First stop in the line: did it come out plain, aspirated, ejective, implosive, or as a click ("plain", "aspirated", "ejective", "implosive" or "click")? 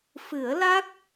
plain